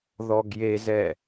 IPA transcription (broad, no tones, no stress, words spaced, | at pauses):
ðɔɡjezɛ